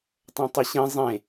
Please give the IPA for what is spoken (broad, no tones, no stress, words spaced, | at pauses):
tˤɐ̃tˤɪɕẽ zˤẽ